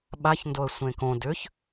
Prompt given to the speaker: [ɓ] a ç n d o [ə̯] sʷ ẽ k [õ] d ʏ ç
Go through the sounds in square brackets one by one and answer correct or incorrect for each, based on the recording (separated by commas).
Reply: correct, correct, correct